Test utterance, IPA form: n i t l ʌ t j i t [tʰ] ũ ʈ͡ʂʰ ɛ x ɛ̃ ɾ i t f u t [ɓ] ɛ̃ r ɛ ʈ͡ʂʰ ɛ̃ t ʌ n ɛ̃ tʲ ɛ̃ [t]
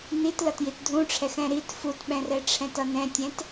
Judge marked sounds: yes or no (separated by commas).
no, yes, yes